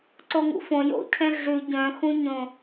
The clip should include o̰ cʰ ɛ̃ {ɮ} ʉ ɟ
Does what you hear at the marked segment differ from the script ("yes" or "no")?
no